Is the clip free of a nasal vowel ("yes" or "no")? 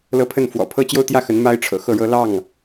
yes